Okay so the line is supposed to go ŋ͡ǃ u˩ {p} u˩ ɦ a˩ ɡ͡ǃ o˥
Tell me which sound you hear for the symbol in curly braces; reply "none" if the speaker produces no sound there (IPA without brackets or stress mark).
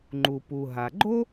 p